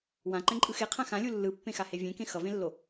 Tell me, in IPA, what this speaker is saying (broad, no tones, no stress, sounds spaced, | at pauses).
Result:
w ã ǃ ɛ̃ ǃʼ ɯ x e qʰ ã x ã lʲ u lː ɯ pː ẽ x a h e vʲ ẽ k ẽ x ʌ v ẽ lː o